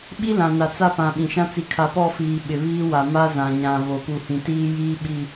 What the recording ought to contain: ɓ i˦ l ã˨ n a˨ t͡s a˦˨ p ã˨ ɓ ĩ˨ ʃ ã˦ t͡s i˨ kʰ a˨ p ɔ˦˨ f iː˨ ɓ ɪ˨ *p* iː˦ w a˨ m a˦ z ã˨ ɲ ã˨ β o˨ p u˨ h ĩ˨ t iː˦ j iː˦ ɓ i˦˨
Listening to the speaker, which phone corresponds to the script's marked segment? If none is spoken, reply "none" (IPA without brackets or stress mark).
β